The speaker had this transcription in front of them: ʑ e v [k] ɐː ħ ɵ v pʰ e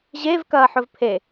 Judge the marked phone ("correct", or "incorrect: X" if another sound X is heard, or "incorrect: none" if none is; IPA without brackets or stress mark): correct